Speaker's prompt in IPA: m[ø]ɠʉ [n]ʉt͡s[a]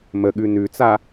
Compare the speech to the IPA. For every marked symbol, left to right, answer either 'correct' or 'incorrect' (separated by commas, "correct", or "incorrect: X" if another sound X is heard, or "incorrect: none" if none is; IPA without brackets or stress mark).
incorrect: ə, correct, correct